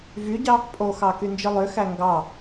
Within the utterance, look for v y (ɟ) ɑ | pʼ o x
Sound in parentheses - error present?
no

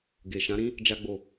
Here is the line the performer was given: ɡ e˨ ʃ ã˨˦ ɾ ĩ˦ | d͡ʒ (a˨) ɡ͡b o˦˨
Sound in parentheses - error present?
yes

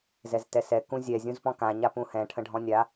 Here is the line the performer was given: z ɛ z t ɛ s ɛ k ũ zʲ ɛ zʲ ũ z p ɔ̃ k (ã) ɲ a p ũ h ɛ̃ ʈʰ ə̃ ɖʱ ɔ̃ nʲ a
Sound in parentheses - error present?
no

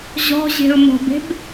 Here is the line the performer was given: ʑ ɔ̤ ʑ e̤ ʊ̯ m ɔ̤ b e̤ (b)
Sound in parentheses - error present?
no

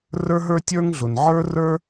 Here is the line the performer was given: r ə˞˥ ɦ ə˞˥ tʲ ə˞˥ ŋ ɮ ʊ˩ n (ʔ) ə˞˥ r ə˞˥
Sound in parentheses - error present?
yes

